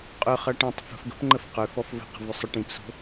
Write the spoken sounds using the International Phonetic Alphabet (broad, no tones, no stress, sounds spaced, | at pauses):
qʼ ʏ χ ʌ ʈ ĩ tˤ f ə̤ f ɡ ə̤ p ŋ͡ǃ ə f q ʏ f ɔ f v ə̤ q ə̤ v ʏ sˤ ʏ ʈ ĩ p s o̤